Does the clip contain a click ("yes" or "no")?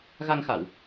no